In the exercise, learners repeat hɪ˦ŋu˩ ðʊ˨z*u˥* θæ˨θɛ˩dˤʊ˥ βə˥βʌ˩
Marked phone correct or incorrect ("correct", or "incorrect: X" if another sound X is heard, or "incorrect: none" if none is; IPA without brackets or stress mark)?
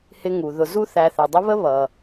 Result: correct